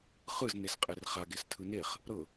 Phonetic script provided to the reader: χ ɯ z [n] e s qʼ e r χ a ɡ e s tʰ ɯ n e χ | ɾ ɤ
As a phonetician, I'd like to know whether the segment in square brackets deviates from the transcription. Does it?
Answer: no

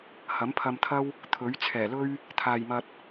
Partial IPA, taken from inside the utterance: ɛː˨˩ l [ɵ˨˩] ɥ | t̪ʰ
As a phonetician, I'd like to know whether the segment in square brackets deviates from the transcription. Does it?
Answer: yes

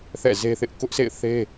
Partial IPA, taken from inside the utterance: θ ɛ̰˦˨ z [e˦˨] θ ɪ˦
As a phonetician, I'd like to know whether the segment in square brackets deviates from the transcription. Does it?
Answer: yes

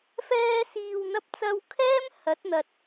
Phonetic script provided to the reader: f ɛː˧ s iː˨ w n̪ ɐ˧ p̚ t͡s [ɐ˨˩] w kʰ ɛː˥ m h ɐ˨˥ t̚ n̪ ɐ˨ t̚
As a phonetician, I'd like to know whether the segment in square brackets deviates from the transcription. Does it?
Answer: yes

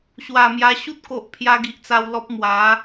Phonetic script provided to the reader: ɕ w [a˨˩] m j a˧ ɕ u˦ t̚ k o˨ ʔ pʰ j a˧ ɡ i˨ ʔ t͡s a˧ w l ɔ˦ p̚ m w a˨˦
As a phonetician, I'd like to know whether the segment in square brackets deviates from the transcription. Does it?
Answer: no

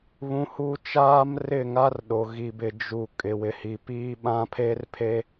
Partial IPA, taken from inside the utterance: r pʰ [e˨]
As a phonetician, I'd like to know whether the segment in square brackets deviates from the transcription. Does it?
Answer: yes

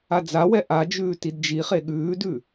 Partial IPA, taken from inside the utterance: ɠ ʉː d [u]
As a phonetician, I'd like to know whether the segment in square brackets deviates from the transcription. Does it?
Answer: yes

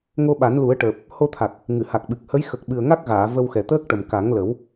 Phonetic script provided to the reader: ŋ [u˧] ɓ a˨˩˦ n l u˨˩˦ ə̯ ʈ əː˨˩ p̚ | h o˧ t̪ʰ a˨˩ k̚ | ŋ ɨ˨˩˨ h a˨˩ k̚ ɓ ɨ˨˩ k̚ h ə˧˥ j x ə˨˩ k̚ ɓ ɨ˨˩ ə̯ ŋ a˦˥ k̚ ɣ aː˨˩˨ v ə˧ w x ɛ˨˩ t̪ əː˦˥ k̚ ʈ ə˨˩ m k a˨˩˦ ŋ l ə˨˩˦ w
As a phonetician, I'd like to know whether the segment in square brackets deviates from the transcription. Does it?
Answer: yes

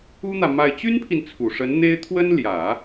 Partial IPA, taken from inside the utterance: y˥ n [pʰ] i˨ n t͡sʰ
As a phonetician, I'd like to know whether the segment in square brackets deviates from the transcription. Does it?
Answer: no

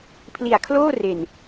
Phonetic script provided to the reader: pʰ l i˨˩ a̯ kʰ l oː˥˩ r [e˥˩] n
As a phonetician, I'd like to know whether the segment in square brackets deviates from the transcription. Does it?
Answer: yes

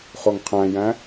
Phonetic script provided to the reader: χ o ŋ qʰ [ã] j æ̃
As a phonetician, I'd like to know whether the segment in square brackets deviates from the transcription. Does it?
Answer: yes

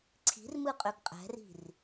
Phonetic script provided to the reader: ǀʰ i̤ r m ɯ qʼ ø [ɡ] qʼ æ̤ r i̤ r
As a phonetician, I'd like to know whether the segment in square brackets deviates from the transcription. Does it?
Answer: no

